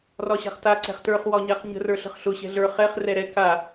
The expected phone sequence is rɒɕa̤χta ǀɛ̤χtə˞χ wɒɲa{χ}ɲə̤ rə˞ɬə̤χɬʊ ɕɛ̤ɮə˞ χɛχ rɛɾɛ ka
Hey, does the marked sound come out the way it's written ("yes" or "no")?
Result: yes